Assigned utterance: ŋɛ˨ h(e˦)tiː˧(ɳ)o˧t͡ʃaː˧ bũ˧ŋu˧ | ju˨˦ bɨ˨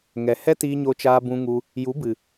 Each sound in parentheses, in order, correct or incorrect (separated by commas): incorrect, incorrect